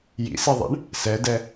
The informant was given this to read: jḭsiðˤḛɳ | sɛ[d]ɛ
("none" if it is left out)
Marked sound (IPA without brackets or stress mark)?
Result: d